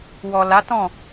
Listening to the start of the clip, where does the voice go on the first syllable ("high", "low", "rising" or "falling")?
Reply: low